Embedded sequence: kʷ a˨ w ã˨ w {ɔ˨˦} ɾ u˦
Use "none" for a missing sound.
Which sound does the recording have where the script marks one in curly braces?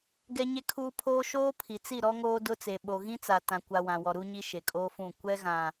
ɔ˨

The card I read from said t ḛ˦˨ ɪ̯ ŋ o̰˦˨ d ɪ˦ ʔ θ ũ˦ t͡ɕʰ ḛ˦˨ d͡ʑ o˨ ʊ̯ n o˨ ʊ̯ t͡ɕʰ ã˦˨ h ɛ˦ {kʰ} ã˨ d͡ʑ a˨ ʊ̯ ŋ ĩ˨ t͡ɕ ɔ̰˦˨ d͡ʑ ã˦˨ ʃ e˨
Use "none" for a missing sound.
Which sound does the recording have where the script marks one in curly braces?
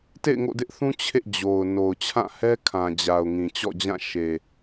kʰ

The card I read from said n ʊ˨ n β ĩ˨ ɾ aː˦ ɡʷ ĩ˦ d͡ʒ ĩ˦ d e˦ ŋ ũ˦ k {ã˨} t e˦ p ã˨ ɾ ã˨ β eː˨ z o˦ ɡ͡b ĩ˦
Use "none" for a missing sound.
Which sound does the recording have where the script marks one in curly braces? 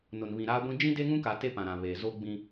a˨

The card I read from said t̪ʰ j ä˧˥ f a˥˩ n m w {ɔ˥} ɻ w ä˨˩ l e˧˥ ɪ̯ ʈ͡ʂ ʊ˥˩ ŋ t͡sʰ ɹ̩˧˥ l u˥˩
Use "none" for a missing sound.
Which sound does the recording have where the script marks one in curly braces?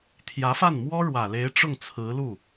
ɔ˥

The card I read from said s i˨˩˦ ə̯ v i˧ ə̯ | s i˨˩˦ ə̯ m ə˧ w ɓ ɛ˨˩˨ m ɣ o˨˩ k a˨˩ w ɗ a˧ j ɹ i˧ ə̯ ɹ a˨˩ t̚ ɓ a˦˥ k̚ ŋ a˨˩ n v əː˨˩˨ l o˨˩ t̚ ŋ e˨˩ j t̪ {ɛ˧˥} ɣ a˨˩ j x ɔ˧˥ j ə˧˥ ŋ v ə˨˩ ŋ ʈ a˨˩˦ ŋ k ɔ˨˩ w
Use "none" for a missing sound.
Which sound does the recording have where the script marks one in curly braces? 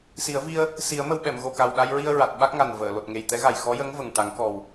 ɛ˧˥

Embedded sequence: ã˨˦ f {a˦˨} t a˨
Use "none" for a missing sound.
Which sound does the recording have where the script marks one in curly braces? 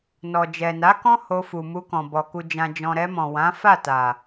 a˦˨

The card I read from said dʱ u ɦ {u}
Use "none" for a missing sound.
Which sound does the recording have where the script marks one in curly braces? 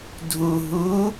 u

